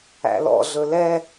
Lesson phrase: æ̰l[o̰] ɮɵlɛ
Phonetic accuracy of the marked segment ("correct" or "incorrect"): incorrect